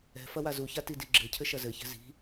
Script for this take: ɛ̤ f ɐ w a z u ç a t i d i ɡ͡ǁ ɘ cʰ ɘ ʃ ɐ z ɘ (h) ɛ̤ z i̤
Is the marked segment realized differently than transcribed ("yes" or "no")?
yes